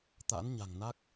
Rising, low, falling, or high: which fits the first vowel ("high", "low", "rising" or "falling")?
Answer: rising